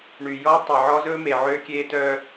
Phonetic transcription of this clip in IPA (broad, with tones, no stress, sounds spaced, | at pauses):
ɳ y˨ j ɔ˦ tˤ ɛ˨ ʕ ɔ˦ z ɵ˦ m e˨ ʕ ø˦ kʲ e˦ t œ˦